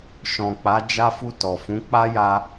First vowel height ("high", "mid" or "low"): mid